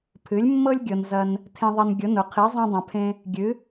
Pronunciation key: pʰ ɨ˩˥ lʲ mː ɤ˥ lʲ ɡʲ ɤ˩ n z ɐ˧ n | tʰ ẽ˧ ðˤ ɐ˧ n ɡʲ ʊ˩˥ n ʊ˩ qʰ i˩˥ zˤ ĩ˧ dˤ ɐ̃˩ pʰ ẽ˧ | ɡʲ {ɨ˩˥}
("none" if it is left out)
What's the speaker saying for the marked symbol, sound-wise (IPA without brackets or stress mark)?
ɨ˩˥